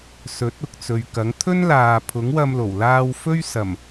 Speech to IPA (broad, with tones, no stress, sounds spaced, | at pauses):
s ɵ˨˥ t̚ ʊ˨ k̚ t͡s ɵ˨ ɥ k ɐ˨˥ ŋ t̪ʰ ɵ˥ n l aː˨ pʰ ʊ˨˥ ŋ w ɐ˧ m l o˨˩ w l aː˧ w f ɵ˥ ɥ s ɐ˨˩ m